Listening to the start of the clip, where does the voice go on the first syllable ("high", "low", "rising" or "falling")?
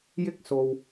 high